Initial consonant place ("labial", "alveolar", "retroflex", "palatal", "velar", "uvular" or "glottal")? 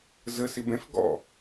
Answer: alveolar